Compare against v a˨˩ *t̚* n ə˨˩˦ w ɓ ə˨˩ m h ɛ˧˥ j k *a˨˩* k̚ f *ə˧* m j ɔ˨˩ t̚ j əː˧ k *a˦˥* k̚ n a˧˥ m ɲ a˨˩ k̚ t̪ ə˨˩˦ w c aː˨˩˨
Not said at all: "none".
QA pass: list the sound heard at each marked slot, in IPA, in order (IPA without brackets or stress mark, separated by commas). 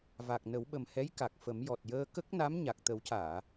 k̚, a˨˩, ə˨˩˦, ə˦˥